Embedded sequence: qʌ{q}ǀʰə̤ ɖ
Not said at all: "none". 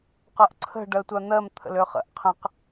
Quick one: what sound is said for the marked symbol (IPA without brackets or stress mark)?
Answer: ʔ